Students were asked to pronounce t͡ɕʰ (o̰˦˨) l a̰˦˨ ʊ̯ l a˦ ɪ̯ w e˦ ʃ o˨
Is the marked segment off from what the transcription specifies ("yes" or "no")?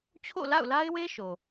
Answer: no